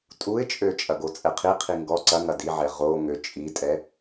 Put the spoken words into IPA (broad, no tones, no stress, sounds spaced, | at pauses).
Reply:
tʼ u ɪ̯ t͡ʃʼ ø t͡ʃʼ ɐ ɡ o t͡sʼ ɛ qʰ i qʰ i ŋ ɡ ɔ ǀ ɐ ŋ ɐ d i ʕ ɛ ʁ o ŋ ø t͡ʃʼ i tʼ ɛ